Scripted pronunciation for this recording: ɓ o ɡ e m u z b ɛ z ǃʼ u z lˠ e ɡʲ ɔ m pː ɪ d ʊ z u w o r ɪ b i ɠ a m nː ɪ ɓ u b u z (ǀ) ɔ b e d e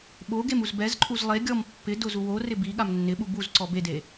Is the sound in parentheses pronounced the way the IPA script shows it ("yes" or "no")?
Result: yes